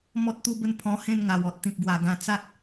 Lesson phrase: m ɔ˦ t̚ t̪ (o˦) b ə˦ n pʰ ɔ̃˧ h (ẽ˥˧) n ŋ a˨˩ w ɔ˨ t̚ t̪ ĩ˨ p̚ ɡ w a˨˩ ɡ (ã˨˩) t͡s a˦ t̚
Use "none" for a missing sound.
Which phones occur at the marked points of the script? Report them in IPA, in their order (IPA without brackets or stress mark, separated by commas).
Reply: u˦, ẽ˥˧, ã˧